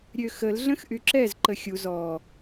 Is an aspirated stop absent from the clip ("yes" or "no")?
yes